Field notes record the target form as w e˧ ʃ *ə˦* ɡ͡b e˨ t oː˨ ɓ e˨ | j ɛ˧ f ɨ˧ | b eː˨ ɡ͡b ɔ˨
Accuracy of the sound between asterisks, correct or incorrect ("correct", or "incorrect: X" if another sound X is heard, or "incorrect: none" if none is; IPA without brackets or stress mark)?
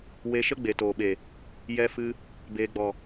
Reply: correct